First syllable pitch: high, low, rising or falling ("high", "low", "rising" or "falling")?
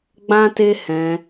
high